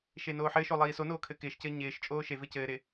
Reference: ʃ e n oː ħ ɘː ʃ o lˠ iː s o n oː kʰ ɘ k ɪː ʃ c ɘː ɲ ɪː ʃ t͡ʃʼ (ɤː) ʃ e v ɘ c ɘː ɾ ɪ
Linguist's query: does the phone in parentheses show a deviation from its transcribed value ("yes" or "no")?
yes